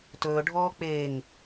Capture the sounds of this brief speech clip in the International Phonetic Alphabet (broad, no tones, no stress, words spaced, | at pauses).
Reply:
tɵːɖʱɔː k͡peːŋ